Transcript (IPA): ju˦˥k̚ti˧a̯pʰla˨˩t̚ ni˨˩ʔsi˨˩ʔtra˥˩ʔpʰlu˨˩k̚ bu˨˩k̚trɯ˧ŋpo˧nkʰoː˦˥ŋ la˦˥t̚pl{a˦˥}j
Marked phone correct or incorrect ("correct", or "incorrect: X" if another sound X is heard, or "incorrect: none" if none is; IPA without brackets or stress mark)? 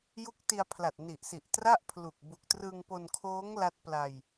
incorrect: a˧